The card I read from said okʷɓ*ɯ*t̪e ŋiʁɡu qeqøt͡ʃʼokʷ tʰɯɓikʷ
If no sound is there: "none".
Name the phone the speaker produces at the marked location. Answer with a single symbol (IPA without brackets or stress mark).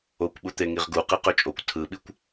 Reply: u